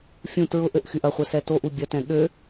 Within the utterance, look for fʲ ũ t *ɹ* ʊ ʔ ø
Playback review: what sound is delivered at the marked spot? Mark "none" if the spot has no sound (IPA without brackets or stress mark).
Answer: ɹ